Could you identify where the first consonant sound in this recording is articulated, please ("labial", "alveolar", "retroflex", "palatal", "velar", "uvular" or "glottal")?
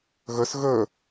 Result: velar